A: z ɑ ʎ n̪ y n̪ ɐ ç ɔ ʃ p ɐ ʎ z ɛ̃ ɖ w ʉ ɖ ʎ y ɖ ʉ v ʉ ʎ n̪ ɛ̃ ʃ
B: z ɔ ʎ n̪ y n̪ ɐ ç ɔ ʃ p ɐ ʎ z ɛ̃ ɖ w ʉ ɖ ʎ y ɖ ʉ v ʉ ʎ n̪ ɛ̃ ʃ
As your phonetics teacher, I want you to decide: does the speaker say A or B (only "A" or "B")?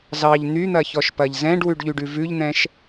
A